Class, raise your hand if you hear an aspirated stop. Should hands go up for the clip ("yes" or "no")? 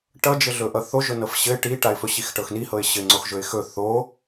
no